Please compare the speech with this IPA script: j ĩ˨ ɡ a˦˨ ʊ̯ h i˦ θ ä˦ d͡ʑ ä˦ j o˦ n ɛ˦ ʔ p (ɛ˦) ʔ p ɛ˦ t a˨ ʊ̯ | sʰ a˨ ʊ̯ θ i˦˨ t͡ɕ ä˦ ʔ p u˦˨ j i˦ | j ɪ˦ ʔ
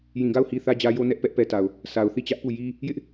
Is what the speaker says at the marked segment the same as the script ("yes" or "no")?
yes